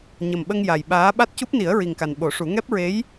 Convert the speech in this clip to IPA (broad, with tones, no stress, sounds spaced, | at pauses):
ɲ ə˨˩ m ɓ ə˧ ŋ j a˨˩ j ɓ aː˧˥ ɓ a˦˥ t̚ c u˦˥ p̚ n i˨˩˦ ə̯ ɹ i˨˩ ŋ k a˨˩ n ɓ o˨˩˦ ʂ u˨˩˦ ŋ ɛ˦˥ p̚ ɹ e˧˥ j